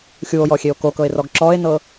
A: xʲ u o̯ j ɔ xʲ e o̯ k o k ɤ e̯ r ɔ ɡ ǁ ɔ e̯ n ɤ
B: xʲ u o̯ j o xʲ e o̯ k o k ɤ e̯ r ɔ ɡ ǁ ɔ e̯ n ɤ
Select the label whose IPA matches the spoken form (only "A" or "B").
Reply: A